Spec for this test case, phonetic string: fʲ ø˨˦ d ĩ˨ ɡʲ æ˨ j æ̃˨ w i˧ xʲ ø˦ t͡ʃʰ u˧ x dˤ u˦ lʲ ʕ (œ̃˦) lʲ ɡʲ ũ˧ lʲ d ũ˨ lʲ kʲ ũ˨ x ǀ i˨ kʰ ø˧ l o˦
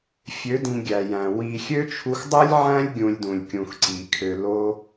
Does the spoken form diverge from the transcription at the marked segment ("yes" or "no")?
yes